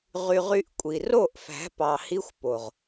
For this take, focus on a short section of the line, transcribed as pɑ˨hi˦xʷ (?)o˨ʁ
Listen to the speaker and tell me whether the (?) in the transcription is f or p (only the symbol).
p